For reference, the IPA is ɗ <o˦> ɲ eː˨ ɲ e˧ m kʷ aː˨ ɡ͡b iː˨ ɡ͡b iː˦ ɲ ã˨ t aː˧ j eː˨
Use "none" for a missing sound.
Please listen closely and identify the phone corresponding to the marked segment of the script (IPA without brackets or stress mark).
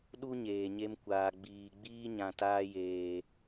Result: u˦